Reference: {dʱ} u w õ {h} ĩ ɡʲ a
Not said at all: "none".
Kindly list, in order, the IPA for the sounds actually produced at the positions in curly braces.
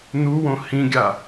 n̪, h

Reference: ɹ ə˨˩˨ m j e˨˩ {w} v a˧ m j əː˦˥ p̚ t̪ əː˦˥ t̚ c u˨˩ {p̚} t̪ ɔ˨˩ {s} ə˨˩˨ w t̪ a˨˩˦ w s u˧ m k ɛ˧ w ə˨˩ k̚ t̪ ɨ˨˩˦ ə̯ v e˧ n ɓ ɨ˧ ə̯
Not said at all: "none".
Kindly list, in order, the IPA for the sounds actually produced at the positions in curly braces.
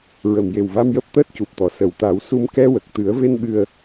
w, p̚, s

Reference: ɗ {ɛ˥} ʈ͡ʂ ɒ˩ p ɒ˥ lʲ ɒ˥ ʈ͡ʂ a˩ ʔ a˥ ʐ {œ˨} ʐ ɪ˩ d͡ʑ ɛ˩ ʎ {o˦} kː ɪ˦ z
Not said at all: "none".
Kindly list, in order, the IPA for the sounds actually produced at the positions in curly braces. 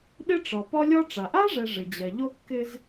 ɪ˥, ɛ˨, o˦

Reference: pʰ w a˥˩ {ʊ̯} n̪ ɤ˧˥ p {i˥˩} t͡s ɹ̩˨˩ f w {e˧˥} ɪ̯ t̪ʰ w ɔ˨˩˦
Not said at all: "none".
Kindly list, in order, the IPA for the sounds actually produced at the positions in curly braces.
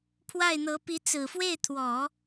ɪ̯, i˧˥, e˥˩

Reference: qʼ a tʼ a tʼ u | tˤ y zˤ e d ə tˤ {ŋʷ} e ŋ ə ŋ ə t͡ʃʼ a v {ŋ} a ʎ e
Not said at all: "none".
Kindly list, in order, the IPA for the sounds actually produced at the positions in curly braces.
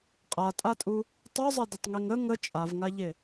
ŋ, ŋ

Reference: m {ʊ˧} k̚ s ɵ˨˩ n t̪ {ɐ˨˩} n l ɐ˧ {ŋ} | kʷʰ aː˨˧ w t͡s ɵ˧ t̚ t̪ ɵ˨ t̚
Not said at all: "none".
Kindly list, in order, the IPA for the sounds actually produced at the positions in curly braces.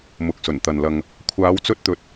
ʊ˨˥, ɐ˨, ŋ

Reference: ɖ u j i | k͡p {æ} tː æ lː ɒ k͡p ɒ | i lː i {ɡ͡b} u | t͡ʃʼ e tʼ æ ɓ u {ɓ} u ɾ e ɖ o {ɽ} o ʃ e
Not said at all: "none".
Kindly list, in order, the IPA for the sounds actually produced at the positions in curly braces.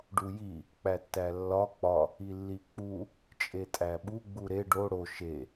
æ, k͡p, ɡ͡b, ɽ

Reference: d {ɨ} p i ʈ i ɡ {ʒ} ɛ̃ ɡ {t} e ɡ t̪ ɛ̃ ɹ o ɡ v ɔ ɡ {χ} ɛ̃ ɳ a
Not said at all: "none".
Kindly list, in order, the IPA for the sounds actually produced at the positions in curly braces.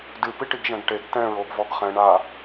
ɨ, ʒ, ʈ, χ

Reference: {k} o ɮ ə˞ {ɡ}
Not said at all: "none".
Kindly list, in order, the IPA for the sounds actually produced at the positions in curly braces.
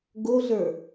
ɡ, none

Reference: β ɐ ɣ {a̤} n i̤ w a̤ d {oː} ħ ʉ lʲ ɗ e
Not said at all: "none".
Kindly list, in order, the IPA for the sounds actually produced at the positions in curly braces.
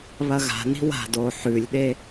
a̤, oː

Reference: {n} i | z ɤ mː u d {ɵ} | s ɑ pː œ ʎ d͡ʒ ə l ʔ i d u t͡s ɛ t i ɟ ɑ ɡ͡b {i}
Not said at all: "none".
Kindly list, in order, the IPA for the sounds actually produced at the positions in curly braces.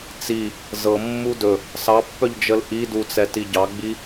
t͡s, ɵ, i

